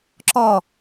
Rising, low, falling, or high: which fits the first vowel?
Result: falling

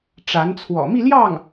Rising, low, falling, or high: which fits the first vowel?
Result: rising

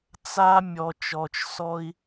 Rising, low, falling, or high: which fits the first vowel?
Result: high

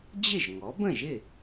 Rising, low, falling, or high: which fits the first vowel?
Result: falling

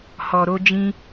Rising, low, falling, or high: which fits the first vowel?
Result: low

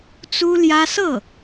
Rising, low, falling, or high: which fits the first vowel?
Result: high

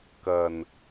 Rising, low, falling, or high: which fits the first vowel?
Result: low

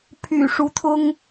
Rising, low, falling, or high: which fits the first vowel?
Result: low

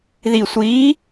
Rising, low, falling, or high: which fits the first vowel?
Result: low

